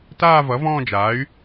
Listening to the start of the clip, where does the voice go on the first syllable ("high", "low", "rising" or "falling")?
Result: falling